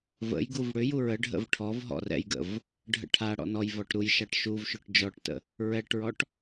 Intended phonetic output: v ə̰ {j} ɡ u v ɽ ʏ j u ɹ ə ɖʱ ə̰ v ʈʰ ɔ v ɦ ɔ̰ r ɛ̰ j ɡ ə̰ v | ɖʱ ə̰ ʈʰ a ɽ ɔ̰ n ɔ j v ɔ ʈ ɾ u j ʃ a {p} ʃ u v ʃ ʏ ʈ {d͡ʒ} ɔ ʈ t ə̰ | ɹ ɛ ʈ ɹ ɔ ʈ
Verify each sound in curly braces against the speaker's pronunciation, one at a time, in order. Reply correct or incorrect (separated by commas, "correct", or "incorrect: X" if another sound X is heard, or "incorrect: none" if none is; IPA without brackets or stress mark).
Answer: correct, incorrect: ʈ, correct